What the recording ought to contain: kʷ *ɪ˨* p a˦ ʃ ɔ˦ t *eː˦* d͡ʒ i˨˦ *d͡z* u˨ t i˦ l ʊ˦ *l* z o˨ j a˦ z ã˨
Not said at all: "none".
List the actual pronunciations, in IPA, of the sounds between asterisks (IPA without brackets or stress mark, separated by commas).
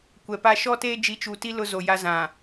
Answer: ɛ˨, eː˦, t͡ʃ, none